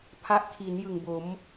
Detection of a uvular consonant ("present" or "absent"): absent